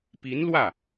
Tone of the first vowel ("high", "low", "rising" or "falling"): rising